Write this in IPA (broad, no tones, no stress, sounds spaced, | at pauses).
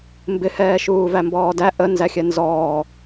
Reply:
m b ɪ h ɛː ʃ uː v æ m b ɔː d æ ʔ ə n z æ xʲ ɛ n z ɔː